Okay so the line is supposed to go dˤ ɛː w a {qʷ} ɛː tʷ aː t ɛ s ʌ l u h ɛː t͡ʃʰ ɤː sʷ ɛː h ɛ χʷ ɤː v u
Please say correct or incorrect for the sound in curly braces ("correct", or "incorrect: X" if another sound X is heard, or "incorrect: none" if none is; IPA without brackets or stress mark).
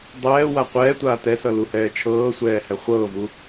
correct